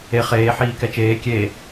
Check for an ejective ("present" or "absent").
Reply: absent